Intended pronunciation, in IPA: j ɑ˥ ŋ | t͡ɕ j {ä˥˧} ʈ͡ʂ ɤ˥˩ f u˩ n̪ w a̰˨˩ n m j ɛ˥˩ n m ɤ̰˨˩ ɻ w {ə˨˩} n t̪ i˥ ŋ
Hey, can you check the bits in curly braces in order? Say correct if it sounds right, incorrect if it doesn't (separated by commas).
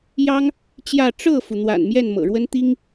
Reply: correct, incorrect